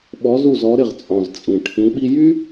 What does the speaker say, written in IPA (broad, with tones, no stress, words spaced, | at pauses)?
ɓɔ˩˧zu˩zɔ˩˧ ɾɪ˩ʁt͡sʼɔ̃˩z t͡sʼĩ˩ ʈʰĩ˩˧ɓi˧ jy˥